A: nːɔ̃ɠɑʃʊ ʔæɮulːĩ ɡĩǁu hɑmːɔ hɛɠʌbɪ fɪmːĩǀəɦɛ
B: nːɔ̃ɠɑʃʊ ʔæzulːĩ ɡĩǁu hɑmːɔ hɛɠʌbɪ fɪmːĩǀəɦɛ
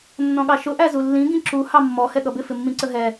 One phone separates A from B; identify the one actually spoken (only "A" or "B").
B